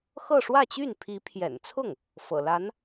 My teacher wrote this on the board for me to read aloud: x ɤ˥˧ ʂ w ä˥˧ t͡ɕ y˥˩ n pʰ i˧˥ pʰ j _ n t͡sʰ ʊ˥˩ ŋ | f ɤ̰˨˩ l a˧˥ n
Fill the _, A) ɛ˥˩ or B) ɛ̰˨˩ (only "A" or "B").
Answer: B